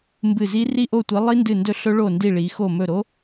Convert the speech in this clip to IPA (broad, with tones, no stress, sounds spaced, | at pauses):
m b ɨ˦˨ z i˦˥ r i˦˨ ʔ o˦˨ tʷ i˨˦ lˠ i˦˥ n d ɨ˦˨ n d ɵ˦˥ ɬ ɵ˦˥ ɭ o˦˨ n d i˦˨ ɭ i˨˦ x o˦˨ m ɵ˦˨ ɾ o˦˥